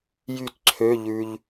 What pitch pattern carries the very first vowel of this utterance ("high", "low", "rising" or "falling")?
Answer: falling